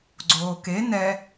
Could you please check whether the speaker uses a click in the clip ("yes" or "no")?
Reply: yes